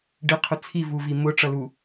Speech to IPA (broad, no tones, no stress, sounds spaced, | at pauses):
ɖ ɪ qʰ ʊ t͡sʰ i v u v i m ʊ ʈ͡ʂ ʌ l u